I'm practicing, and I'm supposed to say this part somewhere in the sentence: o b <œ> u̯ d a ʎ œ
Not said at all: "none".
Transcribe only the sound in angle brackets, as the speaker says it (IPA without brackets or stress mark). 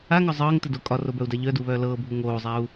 œ